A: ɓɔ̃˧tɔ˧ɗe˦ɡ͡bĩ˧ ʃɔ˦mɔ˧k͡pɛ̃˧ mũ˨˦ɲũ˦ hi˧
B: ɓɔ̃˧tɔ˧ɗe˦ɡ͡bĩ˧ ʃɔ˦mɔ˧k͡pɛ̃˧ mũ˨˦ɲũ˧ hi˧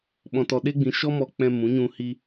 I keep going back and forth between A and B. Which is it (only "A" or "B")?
B